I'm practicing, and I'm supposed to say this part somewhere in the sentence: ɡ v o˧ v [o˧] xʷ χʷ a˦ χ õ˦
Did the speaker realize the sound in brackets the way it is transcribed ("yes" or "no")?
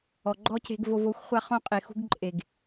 yes